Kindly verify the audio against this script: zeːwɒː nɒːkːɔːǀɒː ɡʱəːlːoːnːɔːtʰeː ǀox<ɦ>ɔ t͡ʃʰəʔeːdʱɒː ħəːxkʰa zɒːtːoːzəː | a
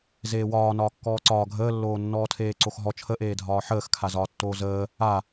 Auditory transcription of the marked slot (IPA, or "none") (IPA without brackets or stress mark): ɦ